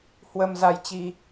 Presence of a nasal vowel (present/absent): absent